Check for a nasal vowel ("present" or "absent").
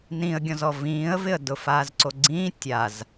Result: present